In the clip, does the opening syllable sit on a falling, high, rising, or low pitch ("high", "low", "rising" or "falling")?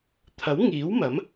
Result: rising